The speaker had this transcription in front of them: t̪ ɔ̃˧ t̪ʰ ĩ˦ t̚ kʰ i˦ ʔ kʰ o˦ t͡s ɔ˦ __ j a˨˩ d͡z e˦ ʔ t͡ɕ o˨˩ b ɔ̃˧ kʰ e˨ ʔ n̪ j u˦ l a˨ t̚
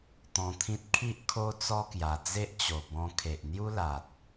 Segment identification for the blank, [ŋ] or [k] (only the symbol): k